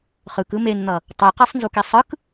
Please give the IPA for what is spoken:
χɯkɯ menn̪ʌ | tˤiqesˤnzuki sˤɯk

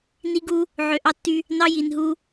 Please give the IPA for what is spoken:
ni˦ ɡu˦ | ʕø˨ʔɑ˦tːy˦ | nɑ˦ji˨nɦu˦

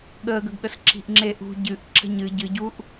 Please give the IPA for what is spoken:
ɠəːɡəɡɠəs ǁi̤ʔŋ͡ǁeʔṳ ɟɨʔ ǁə̤ɲɨ ɟɨɟuʔ

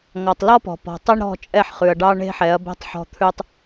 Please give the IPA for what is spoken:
ŋɔ˨tˤlɔ˦pɔ̤˨pɔ̤˨ tˤɛ˦ɳɾɔ̤˦˨ t͡ʃʼɛ˦ħχʉ˨ɐ̯ɖɑ˦ ɳe̤˦ħɛ˨˦ɐ̯bɛ̤˦tˤħɔ̤˦ t̪ʰʉ˦tˤ

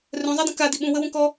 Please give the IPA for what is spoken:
rœ̃zˤadə̃ kadi ɓũwəwũ kɔ

